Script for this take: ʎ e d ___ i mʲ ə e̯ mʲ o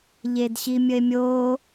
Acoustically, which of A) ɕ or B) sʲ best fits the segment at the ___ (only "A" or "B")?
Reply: A